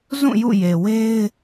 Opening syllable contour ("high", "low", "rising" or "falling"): falling